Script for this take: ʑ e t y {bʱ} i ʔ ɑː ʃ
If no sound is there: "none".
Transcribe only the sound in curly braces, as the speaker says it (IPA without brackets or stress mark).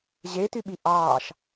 ɓ